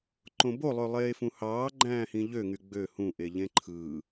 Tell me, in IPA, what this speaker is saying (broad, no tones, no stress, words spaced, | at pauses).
ǃõbo lˠølˠeːfũhɑː ɡ͡ǃæ̃ːhĩʎø ŋyɡ͡bø hũ ʔeʎẽǃʰɯː